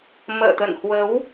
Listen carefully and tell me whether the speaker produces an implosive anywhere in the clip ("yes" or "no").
no